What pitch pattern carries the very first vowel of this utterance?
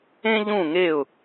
high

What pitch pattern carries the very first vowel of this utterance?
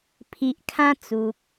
low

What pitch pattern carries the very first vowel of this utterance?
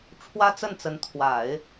high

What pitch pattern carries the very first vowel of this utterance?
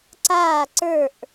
falling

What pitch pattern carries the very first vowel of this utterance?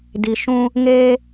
low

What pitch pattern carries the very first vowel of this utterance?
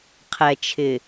low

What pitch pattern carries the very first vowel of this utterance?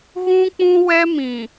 high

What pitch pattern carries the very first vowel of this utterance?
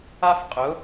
high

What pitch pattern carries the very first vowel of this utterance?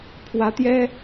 rising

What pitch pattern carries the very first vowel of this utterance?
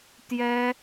high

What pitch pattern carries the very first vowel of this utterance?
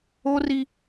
high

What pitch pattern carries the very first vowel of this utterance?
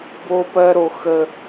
high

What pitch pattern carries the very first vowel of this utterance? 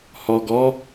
low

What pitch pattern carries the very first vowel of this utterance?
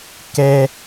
high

